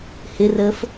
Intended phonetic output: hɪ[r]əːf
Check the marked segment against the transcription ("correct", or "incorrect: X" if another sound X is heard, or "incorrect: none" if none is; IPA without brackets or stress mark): correct